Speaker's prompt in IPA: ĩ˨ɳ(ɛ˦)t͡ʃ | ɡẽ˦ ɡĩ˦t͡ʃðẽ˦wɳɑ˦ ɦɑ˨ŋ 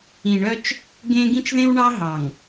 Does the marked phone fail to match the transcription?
yes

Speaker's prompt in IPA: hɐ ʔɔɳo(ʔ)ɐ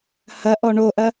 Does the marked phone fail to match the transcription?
no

